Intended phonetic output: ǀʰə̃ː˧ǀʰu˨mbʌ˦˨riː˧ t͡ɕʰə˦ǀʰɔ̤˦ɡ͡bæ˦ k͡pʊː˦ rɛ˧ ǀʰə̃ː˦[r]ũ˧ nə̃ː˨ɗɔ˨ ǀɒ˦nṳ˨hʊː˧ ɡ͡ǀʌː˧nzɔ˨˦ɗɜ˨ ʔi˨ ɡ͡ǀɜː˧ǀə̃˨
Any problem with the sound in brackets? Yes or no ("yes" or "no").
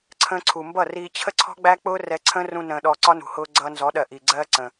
no